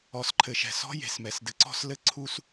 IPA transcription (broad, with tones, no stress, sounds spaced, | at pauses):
ɔ˨ s ǃʰ ɘ˨ ʃ ɛ̤˨ s ɔ̤˦ j e̤˨ s m ɛ˨ s d ɘ˨ ǀ ɔ̤˦ s l ɘ˦˨ ǀʰ u˦ s